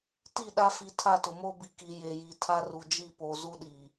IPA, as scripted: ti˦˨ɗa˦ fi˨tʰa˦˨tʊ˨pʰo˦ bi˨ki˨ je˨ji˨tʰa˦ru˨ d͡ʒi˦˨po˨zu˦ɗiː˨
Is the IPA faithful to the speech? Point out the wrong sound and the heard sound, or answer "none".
pʰ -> m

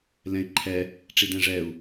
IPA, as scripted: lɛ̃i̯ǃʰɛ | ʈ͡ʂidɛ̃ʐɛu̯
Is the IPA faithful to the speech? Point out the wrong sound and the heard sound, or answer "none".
none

